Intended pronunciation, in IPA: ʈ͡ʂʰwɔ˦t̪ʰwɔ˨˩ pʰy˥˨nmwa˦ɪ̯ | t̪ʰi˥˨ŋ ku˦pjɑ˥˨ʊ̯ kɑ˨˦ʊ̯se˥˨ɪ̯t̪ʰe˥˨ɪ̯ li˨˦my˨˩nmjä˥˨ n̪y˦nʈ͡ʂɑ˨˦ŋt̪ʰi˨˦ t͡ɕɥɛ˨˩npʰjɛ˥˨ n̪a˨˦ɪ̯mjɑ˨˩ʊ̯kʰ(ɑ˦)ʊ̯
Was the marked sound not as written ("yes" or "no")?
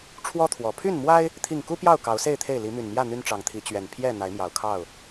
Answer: yes